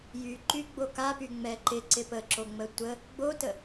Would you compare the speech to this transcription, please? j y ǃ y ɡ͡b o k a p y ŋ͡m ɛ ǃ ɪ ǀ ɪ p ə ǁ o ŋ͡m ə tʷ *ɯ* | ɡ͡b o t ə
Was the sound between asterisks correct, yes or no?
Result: no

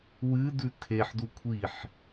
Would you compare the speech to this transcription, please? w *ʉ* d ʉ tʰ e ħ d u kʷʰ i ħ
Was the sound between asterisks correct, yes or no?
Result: no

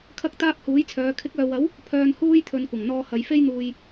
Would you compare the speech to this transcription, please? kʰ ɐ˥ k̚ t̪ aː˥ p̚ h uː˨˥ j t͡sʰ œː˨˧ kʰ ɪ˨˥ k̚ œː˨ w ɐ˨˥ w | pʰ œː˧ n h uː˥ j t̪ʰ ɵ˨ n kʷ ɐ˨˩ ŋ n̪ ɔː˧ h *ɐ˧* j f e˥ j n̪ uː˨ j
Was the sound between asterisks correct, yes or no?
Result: no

